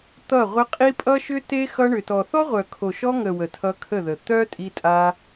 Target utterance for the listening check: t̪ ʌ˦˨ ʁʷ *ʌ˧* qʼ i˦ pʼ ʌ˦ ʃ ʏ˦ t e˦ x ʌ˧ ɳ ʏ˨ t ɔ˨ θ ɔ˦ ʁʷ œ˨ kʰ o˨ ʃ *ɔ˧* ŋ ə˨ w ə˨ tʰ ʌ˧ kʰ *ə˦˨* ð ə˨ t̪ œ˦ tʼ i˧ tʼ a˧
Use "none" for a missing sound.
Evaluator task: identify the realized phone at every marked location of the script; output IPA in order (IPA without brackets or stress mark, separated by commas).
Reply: ə˧, ɔ˧, ə˦˨